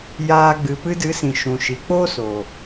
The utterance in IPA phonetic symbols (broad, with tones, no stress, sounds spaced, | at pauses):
j aː˨ ɡ͡b ɨ˨ p ɨ˧ d ɨ˨˦ s ĩ˨ ʃ ũ˨ ʃ i˨ k͡p oː˦ s o˨